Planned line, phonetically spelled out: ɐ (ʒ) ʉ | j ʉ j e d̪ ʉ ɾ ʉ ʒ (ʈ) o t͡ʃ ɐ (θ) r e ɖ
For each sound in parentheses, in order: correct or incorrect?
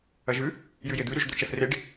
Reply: correct, incorrect, correct

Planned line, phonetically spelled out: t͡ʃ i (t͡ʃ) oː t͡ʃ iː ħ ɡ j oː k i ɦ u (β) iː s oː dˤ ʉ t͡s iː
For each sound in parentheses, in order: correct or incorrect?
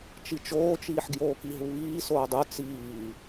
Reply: correct, correct

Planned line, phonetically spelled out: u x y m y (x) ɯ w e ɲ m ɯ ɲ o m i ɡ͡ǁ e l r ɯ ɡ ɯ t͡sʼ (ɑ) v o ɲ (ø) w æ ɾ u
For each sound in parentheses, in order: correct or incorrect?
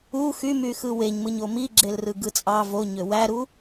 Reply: correct, correct, correct

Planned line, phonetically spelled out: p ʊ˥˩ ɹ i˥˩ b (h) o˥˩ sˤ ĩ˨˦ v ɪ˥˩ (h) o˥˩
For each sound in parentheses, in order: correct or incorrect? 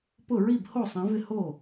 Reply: correct, correct

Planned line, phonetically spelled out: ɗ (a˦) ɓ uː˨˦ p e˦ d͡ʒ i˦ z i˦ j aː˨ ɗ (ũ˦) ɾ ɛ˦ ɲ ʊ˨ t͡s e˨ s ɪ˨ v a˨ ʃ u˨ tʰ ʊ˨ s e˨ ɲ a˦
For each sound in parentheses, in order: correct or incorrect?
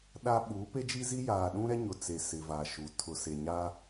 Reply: correct, correct

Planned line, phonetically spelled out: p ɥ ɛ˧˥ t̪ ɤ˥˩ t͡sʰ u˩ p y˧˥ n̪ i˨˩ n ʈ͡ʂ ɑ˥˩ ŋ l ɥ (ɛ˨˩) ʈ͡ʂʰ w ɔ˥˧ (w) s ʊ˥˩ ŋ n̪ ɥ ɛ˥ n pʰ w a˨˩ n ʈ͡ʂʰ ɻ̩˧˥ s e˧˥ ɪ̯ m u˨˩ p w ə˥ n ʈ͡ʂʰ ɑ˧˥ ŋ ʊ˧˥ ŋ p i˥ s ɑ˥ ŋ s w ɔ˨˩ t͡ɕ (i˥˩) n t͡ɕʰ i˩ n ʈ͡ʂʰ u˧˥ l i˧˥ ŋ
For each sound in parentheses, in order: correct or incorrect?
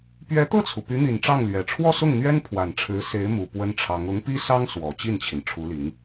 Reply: correct, incorrect, correct

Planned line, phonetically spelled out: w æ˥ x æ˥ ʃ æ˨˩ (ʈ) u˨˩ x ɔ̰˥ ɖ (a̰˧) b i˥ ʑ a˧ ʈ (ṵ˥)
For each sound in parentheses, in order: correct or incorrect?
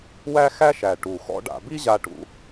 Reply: correct, correct, incorrect

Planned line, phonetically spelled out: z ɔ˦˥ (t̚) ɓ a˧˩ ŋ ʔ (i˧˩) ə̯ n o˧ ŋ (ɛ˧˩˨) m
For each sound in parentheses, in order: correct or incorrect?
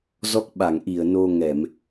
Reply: incorrect, correct, correct

